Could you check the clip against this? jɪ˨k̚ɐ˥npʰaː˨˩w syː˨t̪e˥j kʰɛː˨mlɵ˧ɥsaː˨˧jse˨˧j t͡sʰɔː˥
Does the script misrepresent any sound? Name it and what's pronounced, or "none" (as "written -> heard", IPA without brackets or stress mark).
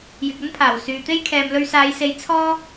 none